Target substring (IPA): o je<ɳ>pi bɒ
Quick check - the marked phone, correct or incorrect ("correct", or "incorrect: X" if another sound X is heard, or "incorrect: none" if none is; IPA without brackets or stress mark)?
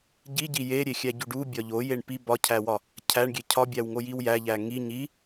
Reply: correct